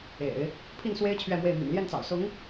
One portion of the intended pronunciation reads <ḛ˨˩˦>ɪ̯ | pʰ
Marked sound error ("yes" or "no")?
no